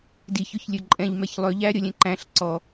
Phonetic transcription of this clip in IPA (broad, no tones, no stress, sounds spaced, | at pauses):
d i ç ɵ ç lʲ ɵ ǃʼ ɛ̃ ʎ m ɛ ç lˠ ø ʎ æ ɾʲ ɔ lʲ ɛ̃ ǃ æ̃ ɬ ǀ ɔ